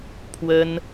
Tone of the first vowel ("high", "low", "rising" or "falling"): high